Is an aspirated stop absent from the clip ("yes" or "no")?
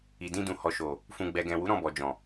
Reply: yes